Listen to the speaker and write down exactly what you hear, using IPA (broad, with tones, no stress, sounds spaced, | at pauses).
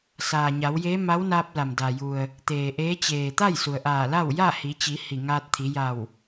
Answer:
s aː˩ ɲ a˩˧ w j eː˧˥ m a˧˥ w n aː˧ p̚ l a˩ m d a˩ j u˩ ə̯ | t̪ eː˩ ʔ eː˧˥ t͡ɕ eː˩ t̪ a˥˨ j s u˩ ə̯ ʔ aː˧˩ l a˥˨ w j a˥˨ h i˩˧ t͡ɕ i˩˧ h i˧˩ ŋ aː˧ t̚ t̪ʰ i˩˧ j a˧˩ w